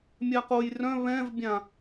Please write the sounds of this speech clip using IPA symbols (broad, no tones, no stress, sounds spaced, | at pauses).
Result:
mʲ a q o j r œ̃ β ɛ̃ v bʲ ã